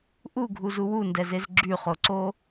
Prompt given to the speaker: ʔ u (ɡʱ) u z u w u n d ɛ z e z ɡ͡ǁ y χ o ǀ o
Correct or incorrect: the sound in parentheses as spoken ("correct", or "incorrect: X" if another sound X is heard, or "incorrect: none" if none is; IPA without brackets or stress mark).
correct